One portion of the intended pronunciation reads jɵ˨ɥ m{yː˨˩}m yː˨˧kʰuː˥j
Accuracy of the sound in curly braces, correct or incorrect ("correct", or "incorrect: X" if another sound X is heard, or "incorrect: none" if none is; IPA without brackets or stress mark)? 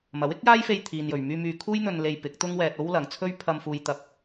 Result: incorrect: yː˧